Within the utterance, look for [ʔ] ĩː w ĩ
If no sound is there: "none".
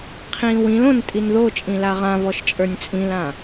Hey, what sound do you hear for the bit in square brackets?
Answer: qʰ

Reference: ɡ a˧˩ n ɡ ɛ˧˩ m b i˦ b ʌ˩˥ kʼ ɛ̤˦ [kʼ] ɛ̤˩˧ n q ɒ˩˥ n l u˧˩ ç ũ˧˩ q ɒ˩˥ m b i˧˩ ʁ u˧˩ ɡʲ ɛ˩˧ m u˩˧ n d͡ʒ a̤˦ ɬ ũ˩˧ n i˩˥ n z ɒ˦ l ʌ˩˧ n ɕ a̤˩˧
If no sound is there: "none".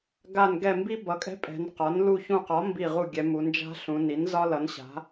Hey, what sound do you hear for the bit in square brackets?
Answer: pʼ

